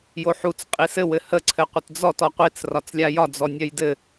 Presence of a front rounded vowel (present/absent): present